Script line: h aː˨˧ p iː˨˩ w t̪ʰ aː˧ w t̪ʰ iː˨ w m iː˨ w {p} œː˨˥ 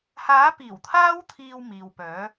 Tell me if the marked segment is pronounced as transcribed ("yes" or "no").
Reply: yes